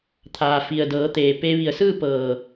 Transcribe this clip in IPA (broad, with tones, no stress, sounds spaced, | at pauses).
t̪ʰ aː˩ f i˩ ə̯ d ɤː˩˧ t̪ eː˩ p e˧ ʋ i˧˩ ə̯ s ɯː˥˨ p ɤː˧˩